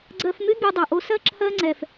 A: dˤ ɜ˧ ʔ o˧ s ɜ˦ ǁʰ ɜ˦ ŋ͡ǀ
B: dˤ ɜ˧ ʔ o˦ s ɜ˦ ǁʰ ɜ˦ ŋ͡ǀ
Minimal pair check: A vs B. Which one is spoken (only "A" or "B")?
B